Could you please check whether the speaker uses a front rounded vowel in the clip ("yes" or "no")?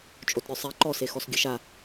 yes